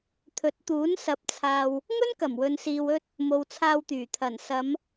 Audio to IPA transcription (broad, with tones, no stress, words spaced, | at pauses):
t̪ʰɵ˨˥t̚t̪uː˨˥n sɐ˨˥p̚t͡sʰaː˨w | ŋɵ˥nkɐ˨˩mwɵ˨nsiː˨w ɵ˧t̚ | mo˨wt͡sʰaː˧wt̪yː˨˩ t̪ʰɐ˨˩nsɐ˨˧m